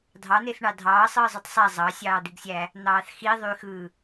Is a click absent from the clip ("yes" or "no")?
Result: yes